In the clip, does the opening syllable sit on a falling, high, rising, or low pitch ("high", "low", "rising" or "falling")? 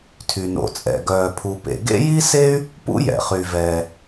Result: low